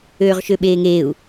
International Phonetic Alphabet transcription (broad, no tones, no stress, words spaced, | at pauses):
øːʁʃøɓeːŋeːu̯